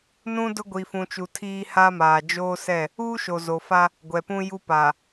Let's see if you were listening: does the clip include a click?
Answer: no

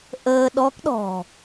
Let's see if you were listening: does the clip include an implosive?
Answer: yes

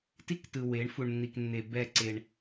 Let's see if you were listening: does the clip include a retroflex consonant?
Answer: yes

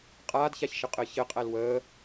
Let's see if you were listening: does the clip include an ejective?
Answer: yes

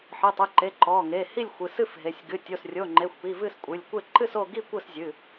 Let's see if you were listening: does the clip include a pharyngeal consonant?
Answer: yes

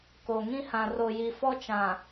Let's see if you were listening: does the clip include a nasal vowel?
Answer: yes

